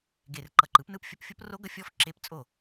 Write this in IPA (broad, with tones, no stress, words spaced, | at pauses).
ɡe˨˩rǃʌ˨˩ǃɯ˩˥p nɯ˦˥pfʲʌ˧˥˧p fʲo˦˥pro˦˥ɡʌ˦˥ fʲɔ˦˥f ǁe˦˥p t͡sʼo˥˩